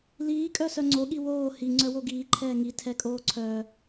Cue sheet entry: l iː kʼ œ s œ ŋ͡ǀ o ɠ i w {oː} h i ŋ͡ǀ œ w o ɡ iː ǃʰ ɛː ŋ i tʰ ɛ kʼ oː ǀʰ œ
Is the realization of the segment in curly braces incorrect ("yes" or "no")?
no